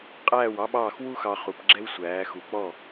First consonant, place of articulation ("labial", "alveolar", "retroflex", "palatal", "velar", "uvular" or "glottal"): uvular